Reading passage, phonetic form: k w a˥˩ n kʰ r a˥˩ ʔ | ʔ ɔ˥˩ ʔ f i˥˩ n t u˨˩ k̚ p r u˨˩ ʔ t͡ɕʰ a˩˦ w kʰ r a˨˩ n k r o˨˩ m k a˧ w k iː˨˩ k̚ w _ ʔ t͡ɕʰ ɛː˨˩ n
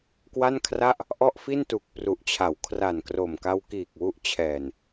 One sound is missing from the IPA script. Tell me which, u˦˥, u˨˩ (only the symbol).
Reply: u˦˥